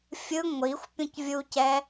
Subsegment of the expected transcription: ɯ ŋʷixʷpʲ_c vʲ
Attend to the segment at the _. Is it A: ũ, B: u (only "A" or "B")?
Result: A